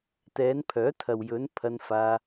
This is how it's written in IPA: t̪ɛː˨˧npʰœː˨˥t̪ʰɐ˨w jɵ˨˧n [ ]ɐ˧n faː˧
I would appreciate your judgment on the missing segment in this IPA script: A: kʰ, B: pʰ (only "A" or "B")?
B